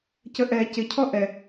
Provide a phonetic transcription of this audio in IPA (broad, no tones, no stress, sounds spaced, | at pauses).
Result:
c ə ʔ ɛ c ɪ cʰ ɔ ʔ ɛ